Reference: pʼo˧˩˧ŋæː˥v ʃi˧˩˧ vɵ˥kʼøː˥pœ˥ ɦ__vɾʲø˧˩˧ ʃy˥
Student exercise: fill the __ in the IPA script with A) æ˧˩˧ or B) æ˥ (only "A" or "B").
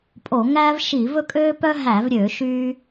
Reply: A